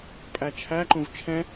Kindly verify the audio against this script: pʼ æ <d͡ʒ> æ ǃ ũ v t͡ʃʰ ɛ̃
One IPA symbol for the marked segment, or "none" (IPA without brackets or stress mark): t͡ʃʰ